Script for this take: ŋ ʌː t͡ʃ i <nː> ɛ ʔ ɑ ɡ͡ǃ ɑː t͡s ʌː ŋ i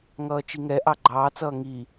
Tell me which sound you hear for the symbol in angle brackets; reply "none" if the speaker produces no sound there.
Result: ŋ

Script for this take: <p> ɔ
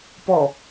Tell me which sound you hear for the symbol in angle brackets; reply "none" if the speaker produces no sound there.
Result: p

